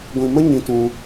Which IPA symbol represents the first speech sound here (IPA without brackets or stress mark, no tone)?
ɡʷ